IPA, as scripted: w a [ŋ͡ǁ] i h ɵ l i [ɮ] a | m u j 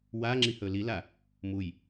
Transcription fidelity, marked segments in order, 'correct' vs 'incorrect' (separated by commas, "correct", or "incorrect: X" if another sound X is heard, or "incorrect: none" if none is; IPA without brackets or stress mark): correct, incorrect: l